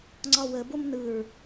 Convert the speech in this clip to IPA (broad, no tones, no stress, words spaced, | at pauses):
ŋ͡ǀɒwə bomnɯɹ